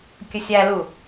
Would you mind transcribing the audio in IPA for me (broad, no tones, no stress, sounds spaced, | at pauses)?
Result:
kʲ ə sʲ æ l u